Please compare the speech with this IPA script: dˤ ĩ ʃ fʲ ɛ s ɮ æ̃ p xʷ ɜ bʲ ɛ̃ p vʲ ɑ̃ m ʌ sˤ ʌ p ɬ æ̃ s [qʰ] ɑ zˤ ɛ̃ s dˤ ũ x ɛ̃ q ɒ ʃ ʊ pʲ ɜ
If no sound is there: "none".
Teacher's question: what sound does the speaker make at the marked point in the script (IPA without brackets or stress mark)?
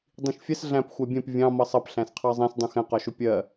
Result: qʰ